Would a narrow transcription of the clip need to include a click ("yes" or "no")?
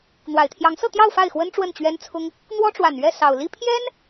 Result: no